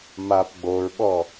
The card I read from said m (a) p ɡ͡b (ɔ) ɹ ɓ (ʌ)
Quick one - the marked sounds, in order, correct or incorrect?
correct, incorrect, incorrect

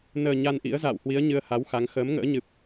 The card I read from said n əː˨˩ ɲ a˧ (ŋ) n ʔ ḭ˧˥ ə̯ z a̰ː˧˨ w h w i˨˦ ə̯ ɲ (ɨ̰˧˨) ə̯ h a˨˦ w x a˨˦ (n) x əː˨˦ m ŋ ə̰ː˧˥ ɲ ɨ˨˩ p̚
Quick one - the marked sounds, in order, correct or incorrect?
incorrect, incorrect, incorrect

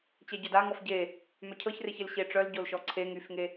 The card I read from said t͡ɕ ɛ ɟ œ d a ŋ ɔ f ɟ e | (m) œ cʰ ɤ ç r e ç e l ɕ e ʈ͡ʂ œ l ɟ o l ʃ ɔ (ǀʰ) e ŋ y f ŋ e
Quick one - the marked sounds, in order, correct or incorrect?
correct, correct

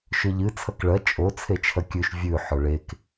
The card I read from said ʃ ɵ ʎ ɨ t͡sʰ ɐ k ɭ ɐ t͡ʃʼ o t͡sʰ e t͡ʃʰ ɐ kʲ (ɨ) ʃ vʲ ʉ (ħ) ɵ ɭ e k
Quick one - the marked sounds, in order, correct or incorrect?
incorrect, correct

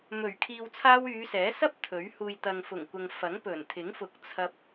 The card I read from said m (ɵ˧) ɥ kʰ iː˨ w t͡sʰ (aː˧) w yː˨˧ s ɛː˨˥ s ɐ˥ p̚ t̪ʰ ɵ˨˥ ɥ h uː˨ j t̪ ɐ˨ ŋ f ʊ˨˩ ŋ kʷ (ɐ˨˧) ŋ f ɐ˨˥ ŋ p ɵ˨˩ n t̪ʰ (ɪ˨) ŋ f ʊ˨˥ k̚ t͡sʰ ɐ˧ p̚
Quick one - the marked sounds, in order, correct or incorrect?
incorrect, correct, incorrect, incorrect

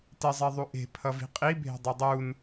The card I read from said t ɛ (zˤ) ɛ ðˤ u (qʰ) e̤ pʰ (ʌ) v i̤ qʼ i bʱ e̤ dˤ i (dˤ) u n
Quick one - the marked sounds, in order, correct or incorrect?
correct, incorrect, correct, correct

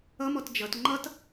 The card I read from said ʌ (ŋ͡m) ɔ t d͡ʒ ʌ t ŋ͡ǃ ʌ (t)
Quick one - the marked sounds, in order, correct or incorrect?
incorrect, correct

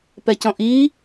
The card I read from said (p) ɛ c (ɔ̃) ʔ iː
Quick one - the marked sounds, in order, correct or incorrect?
correct, correct

